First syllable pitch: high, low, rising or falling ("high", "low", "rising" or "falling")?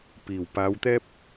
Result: low